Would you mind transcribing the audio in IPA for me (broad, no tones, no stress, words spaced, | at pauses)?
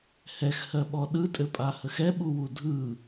hɛxhɜɓɔ ɗɯtʼɘpʼahəx ɛɓuwu dʱɯ